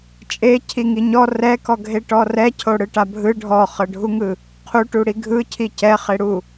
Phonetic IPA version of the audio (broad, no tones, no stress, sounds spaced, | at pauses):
t͡ʃʼ e cʰ i ŋ i ɲ ɔ r ɛ k ɔ ɡʱ e ʈ ɔ r ɛ cʰ o ɽ ɯ ʈ a bʱ ɯ ɖʱ ɔ χ ɤ ɖʱ u ŋ ɯ | qʰ u ʈ u ɽ i ɡʱ ɯ cʰ i c ɛ χ e ɽ u